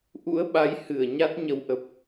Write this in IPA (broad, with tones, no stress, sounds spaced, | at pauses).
ʔ ṵ˧˥ ə̯ ɓ a˨˦ j h ɨ˧˩ ə̯ ɲ a˦˥ t̚ ɲ ə˨˦ w ʔ ə˨˩ p̚